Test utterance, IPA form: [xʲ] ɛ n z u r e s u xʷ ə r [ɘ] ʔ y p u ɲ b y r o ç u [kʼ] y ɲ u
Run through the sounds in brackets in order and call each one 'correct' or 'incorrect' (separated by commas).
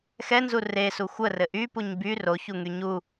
incorrect, correct, incorrect